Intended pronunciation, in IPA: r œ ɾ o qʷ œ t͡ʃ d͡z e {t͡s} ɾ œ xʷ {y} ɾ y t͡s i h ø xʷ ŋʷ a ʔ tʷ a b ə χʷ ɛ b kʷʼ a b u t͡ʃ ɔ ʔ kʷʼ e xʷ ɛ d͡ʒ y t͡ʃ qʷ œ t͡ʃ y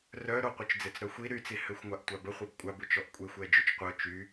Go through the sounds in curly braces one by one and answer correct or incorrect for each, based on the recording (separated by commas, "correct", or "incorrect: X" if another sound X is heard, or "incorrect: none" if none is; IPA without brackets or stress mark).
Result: correct, incorrect: i